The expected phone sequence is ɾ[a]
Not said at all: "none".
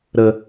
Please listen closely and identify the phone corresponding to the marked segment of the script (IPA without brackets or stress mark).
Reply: ə